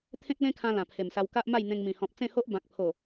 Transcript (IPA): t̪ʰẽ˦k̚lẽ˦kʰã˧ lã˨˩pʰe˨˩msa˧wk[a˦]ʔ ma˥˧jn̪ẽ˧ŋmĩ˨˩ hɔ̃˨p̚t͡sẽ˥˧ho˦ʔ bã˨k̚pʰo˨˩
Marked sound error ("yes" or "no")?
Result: no